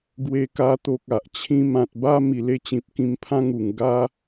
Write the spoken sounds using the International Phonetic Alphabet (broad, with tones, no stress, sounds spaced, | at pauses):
ɡ w e˧ k a˧ t̪ o˨ k̚ a˨ ʔ t͡ɕʰ ĩ˧ m ã˨ t̚ b a˥˧ m i˨˩ l e˥˧ t͡ɕ ĩ˨ p̚ k ĩ˧ m pʰ ã˦ ŋ u˨˩ ŋ ɡ a˧